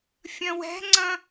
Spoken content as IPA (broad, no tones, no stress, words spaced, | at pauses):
fʲɐ̃wɛ̤ŋ͡ǀɐ̃